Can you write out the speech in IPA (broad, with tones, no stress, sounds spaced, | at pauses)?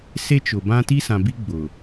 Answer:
s e˦ t͡ʃ ʊ˨ b ã˦ t i˦ s ã˨ b i˦ ɡ͡b ʊ˨